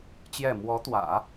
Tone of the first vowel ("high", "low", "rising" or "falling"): falling